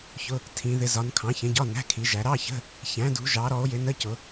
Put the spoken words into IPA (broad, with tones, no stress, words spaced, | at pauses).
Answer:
çʊ˧˥˧ | tʰĩ˨˦ ðɪ˨˦zɒ˨˦n kʰɑ̃˨˦çə̃˨˦ɟɒ˧˥˧ næ̤˧˥˧kʰi˨˦ ʒæ˨˦ ɾɑ˧˥˧çə̤˧˥˧ | çæ̃˨˦dṳ˨˦ʒɑ˨˦ɾɔ˨˦o̯ jɪ˨˦nə˧˥˧cʊ˨˦